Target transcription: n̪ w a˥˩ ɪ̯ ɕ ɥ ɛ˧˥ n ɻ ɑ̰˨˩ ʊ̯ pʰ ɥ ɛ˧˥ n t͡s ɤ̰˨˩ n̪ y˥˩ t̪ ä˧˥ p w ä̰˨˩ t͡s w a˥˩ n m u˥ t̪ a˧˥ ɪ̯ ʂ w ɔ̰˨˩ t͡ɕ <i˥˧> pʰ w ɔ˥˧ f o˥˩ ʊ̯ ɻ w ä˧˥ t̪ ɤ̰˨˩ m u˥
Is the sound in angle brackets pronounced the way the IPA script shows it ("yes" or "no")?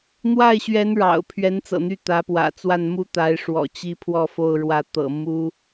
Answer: yes